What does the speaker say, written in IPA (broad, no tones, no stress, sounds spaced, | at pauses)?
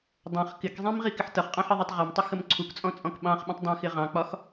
dˤ ɛ̃ χ k ɪ k zˤ ĩ m ʁ i k ɪ ħ t ʌ χ qʼ ɑ̃ ħ ɪ ðˤ u tˤ ʁ ɒ m tˤ ə x ə m ǀʰ u k t͡sʼ ɔ̃ t͡sʼ ɔ̃ k ɓ ɑ̃ χ ɓ ə̃ tˤ dˤ ɛ̃ x ɪ ʁ ɑ̃ k͡p ɒ x